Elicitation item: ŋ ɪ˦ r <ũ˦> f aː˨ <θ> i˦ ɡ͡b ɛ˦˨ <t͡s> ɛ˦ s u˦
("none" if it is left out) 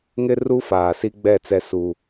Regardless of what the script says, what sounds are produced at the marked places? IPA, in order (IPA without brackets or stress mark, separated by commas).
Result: u˦, s, t͡s